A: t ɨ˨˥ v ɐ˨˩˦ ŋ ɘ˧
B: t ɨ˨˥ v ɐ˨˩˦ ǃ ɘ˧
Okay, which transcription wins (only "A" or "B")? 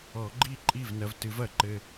B